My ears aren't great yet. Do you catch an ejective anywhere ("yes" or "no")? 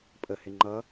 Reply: yes